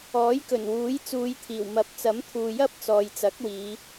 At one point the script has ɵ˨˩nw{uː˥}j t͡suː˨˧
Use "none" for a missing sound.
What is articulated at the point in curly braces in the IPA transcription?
uː˨˥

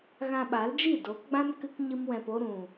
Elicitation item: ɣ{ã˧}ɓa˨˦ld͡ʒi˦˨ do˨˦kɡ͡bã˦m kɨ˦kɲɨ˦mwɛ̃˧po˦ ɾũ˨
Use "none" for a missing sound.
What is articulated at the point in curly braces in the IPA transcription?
ã˧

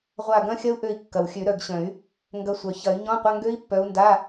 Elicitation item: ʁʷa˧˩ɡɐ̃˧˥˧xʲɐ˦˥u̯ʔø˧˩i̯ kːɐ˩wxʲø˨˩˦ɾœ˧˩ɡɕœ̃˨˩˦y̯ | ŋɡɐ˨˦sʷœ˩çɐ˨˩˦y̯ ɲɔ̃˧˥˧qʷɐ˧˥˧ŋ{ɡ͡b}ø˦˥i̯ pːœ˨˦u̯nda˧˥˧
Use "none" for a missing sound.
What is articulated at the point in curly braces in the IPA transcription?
ɡ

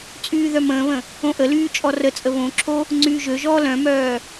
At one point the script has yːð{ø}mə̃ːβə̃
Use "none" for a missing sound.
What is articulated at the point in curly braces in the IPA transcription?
œ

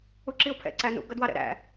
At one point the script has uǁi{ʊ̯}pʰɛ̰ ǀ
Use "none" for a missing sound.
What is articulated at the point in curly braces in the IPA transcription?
ʊ̯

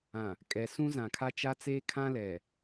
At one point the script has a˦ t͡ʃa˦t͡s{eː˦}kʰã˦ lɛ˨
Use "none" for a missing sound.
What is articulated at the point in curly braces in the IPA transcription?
eː˦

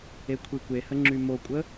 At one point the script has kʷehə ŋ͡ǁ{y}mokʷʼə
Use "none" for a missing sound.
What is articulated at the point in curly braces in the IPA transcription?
y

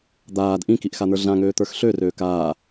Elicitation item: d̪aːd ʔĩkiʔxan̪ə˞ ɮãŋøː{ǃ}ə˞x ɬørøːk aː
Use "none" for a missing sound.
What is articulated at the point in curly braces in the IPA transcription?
t̪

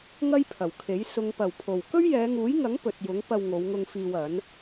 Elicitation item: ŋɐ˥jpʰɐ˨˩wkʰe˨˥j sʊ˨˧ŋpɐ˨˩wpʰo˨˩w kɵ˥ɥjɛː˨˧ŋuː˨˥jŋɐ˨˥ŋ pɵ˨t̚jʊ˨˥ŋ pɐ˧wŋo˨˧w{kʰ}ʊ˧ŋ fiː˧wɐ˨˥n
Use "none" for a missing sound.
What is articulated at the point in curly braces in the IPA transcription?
ŋ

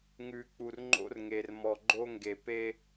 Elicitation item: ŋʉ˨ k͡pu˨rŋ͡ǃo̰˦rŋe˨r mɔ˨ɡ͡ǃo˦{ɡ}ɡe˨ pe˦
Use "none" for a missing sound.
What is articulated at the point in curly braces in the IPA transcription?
ŋ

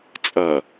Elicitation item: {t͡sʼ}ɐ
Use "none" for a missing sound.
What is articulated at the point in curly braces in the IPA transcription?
t͡sʼ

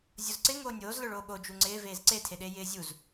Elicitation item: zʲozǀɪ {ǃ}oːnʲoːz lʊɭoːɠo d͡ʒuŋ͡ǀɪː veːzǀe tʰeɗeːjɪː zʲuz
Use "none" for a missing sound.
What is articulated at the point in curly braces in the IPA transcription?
ŋ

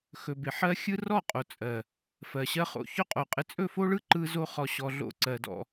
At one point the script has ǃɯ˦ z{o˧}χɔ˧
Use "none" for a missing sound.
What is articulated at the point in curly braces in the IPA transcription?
o˦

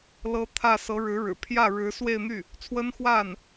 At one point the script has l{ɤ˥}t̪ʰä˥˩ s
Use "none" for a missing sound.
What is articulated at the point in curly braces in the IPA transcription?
ɤ˥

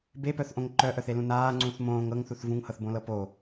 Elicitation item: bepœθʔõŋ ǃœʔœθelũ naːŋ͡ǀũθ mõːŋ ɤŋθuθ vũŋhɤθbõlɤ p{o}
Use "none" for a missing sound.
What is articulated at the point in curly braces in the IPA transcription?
o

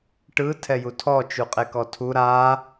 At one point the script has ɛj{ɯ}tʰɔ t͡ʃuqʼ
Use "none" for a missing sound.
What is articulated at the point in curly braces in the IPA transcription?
u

